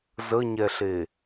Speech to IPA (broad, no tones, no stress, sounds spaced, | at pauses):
z ə ɲ ɛ ɬ e